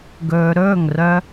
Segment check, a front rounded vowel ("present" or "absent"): present